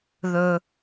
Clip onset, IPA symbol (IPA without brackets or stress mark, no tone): ð